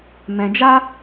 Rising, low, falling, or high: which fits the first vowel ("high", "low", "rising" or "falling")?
low